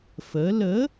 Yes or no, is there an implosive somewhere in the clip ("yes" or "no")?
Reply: no